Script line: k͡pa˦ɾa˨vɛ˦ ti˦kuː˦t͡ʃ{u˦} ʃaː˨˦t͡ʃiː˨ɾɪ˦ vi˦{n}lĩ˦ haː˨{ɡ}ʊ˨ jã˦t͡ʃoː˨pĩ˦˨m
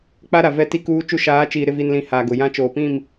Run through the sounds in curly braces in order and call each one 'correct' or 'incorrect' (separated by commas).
correct, correct, correct